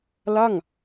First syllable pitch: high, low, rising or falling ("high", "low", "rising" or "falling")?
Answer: falling